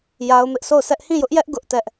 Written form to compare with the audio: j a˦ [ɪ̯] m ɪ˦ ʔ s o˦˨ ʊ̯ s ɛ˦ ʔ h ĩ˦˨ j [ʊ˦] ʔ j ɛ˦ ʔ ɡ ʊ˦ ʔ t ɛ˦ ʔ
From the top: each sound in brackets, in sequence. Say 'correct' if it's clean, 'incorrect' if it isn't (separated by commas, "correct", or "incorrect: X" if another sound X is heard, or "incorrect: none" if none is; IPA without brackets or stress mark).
incorrect: ʊ̯, correct